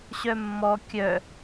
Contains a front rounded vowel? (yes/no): yes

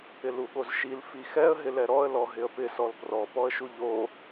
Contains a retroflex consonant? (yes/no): no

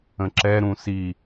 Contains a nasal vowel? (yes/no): yes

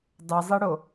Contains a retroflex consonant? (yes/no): yes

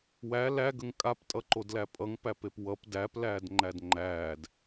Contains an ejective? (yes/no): yes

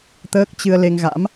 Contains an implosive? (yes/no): no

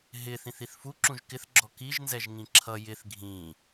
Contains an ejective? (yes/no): no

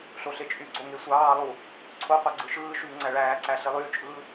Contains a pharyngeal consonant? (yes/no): no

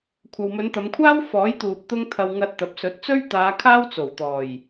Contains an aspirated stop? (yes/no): yes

